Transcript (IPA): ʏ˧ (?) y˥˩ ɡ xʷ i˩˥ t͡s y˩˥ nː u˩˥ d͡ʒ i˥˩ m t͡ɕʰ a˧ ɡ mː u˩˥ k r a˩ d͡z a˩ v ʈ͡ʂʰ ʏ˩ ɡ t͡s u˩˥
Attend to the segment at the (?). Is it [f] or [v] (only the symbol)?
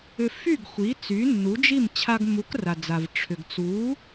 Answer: f